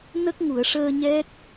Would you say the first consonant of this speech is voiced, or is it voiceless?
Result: voiced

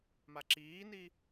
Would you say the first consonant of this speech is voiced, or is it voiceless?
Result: voiced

